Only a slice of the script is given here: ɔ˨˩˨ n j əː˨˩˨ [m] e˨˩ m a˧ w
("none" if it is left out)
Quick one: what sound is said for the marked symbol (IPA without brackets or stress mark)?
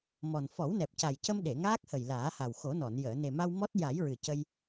n